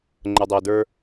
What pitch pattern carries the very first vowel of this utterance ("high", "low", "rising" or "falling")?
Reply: low